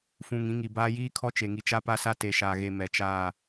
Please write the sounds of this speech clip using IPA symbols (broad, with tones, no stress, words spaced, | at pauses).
fũ˨ŋĩ˨˦ŋi˨baː˦ jiː˦kʰɔ˦ t͡ʃe˨ŋi˨ t͡ʃa˦pa˦sa˦ te˨ʃaː˨ɣe˨ mɛ˨t͡ʃaː˦˨